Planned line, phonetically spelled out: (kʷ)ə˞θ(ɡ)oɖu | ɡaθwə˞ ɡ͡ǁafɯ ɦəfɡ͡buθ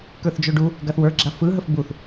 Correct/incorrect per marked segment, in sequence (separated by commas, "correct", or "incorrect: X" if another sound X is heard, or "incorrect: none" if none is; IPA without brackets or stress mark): incorrect: k, incorrect: d͡ʒ